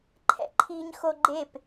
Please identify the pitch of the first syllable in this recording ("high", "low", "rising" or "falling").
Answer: low